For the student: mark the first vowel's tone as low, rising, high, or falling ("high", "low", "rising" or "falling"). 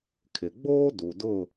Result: low